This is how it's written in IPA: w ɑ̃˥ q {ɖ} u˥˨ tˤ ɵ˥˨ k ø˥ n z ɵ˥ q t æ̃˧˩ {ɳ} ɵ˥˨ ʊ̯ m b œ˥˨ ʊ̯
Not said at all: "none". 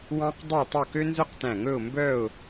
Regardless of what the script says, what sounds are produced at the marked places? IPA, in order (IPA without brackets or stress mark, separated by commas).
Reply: dˤ, ŋ